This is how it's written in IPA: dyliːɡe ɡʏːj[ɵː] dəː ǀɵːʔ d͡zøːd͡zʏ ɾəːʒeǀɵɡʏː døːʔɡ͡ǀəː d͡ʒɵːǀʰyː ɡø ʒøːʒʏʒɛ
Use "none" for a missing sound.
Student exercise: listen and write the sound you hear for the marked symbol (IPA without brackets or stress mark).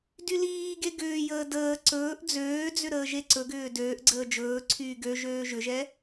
əː